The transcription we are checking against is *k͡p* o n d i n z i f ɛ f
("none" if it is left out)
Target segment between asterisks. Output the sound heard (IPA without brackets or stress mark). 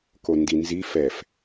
k